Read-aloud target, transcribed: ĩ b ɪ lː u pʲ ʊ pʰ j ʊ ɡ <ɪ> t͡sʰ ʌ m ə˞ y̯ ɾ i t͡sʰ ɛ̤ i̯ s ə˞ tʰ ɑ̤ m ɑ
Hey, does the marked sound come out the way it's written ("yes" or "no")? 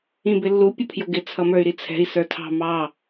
yes